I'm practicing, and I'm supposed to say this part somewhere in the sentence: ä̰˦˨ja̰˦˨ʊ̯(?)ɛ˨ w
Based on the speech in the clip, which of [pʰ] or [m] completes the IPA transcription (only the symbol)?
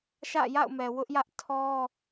m